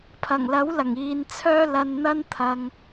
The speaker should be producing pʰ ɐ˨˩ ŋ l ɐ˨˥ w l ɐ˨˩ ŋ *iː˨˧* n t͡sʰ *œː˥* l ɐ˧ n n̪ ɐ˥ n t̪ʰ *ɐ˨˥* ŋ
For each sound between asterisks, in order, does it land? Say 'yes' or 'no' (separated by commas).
yes, yes, no